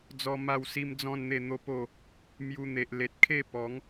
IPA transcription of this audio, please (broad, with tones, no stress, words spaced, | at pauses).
d͡zɔ˦ma˥˧wsi˦md͡zɔ̃˥˧n n̪e˥˧ n̪o˦po˥˧ | mju˧n̪e˨ʔle˨t̚kʰe˥˧ pɔ˨˦ŋ